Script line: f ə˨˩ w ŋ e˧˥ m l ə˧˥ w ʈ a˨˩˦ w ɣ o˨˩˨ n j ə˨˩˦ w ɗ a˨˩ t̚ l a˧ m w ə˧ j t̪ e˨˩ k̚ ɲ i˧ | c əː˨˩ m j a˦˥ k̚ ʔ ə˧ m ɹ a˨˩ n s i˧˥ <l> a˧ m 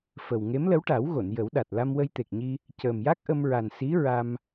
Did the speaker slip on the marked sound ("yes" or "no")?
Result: yes